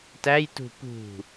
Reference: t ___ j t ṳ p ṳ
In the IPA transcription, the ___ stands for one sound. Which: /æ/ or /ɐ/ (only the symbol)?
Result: æ